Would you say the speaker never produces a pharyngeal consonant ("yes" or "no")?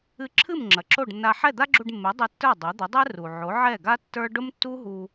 no